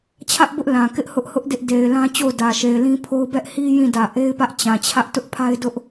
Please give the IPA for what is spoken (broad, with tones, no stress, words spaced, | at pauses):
t͡ɕʰä˦ʔbʊ˦ʔ lã˨kɪ˦ʔ hʊ˦ʔhʊ˦ʔ dɪ˦ʔde˨ɪ̯lã˦ t͡ɕo˦˨ʊ̯dä˨ʃe˨ɪ̯ lĩ˦pʰo˦ʊ̯ bɛ˦ʔ hi˦ jĩ˦˨dä˨ ʔe˦ɪ̯pä˦ʔ t͡ɕã˨ t͡ɕʰä˦ʔ tʊ˦ʔpʰa˦ɪ̯dʊ˦ʔ